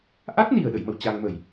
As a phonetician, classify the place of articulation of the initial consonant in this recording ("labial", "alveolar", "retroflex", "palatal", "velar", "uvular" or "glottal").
glottal